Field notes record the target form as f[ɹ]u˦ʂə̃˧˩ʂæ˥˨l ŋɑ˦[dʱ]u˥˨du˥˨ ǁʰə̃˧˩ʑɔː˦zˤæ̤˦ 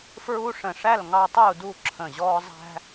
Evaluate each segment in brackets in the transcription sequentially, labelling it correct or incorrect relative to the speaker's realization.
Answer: correct, incorrect: tˤ

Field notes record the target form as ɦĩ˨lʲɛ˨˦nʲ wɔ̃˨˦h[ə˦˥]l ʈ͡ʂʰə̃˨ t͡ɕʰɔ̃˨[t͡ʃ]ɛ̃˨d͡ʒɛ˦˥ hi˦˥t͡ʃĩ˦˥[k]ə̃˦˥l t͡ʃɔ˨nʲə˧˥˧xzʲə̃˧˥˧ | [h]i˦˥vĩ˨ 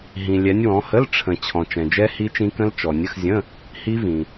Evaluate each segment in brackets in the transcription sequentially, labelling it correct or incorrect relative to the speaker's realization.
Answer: incorrect: ə˧˥˧, correct, correct, correct

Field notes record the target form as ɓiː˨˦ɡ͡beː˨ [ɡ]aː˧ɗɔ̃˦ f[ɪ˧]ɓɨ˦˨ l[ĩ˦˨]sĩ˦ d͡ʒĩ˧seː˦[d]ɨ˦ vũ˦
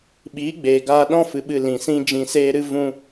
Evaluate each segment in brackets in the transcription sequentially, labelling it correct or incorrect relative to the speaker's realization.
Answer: correct, incorrect: ɨ˧, incorrect: ĩ˨, incorrect: ɾ

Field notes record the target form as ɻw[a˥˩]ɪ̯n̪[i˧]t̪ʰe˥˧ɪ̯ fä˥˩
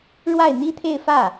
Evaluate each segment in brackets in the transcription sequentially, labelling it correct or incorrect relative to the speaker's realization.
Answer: correct, incorrect: i˥

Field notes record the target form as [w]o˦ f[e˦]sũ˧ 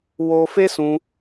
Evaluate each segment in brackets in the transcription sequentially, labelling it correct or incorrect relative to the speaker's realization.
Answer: correct, correct

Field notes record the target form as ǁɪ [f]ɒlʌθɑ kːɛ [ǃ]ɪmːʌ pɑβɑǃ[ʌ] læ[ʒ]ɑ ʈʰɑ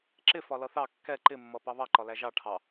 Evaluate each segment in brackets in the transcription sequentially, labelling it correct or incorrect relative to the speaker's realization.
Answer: correct, correct, incorrect: ɒ, correct

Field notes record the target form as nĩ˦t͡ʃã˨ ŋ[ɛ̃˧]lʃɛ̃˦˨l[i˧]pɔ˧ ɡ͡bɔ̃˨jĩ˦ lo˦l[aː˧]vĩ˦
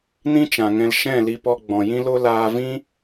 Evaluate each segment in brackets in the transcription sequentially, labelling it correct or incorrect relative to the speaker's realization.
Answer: correct, correct, correct

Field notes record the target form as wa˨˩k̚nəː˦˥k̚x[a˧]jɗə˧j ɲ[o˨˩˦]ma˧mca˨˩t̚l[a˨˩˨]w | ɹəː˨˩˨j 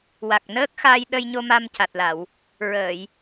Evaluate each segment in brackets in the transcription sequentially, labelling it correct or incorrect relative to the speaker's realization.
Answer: correct, incorrect: o˧, correct

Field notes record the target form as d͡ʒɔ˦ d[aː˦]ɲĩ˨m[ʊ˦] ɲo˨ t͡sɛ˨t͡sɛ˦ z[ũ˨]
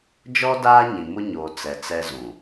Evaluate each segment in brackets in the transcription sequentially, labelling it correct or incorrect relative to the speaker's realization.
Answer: correct, correct, correct

